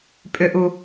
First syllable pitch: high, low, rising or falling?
low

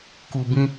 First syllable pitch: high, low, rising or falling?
low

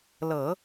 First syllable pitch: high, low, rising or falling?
low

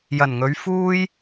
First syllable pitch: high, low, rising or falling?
low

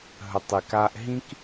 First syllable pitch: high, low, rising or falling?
low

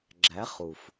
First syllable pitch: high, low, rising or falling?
rising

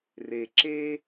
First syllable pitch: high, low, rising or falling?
low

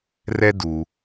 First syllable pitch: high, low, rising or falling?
high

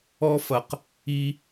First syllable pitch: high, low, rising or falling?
high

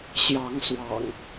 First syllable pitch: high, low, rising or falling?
rising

